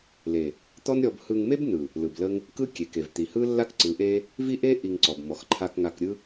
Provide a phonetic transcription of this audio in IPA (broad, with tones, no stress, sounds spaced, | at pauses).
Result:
l e˨ | t̪ ɔ˦ n ɾʲ ɔ˧ b h ɯ˧ ŋ m e˦ b n ɯ˨ | l ɯ˨ b l ə˦ ŋ | k ɯ˦ kʲ e˨ k e˨ v t̪ i˨ h ɯ˦ lː a˦ k ǀ ɯ˨˦ ʔ e˦ | v i˦ ʔ e˦ ʔ i˧ ŋ ǀ ɔ˨ b m ɔ˨ x ǃʰ a˧ k ŋ a˧ k ɾʲ ɯ˦